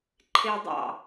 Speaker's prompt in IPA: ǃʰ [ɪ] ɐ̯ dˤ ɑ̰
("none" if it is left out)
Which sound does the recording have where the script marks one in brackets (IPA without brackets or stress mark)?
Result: ɪ